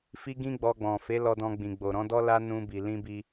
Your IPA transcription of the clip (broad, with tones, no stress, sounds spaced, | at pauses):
f i˦ ɡ ĩ˦ ɡ͡b ɔ˧ ɡ͡b ɔ̃˨ f e˨˦ l ɔ˧ d ɔ̃˧ ɡ͡b ĩ˨ ɡ͡b o˨ ɾ ɔ̃˨˦ d ɔ˦ l a˦ n ũ˧ b i˨ l ĩ˧ b i˧